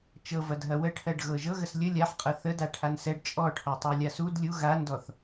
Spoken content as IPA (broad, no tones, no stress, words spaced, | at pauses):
t͡ʃɤvɐd ɦɐwəʈʰɜɖ ɣɤʒɤɣəs lʲə lʲaħqʼɤ θə daʈʰansɛɖ t͡ʃʼɔʈʰɔtˤa lʲasud lʲu ɣandɔθ